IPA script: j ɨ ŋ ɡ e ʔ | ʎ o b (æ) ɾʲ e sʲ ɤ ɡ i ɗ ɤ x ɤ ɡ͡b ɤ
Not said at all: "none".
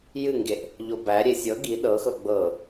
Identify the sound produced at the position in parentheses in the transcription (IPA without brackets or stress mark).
æ